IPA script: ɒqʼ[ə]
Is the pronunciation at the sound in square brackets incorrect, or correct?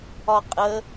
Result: correct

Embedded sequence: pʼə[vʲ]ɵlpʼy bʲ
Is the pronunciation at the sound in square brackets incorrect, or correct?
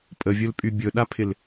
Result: correct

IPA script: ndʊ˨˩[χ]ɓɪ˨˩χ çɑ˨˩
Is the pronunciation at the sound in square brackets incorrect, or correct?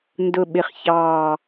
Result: incorrect: none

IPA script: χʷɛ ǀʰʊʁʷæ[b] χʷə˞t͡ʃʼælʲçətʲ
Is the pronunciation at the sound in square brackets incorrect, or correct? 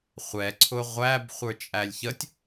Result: correct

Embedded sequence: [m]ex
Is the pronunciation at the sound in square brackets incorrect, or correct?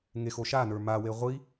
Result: incorrect: ŋ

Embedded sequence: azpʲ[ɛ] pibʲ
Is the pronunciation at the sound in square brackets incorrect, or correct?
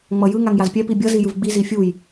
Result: correct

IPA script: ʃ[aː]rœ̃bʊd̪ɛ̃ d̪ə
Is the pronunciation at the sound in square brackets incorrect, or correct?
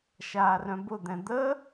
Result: correct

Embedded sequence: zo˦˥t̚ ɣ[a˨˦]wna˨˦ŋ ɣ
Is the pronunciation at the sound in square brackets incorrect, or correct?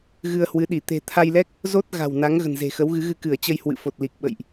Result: incorrect: a̤˨˩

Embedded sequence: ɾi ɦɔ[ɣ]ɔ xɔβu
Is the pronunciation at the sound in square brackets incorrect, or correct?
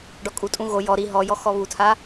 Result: incorrect: j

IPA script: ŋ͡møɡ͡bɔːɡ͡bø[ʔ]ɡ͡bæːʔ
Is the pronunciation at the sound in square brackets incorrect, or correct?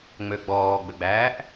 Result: incorrect: none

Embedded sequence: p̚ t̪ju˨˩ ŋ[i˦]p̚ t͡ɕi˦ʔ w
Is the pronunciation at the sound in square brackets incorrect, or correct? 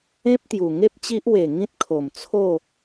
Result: incorrect: e˦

